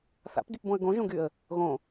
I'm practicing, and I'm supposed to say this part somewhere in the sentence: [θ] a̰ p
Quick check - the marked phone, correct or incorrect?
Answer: correct